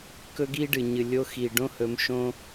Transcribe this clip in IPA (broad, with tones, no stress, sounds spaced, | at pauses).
k ɵ˦ ɡ i˦ ɖ ɨ˨ ɲ ɨ˨ lʲ o˧ x i˨ ɖ õ˦ h ɵ˧ m ʃ õ˦